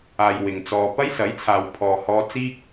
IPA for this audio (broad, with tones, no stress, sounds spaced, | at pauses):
aː˨ j w ɪ˨ ŋ t͡s ɔː˧ p ɐ˥ j s ɐ˨˥ j t͡sʰ aː˨ w pʰ ɔː˨ h ɔː˧ t͡s iː˥ k̚